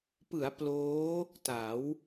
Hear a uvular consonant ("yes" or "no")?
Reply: no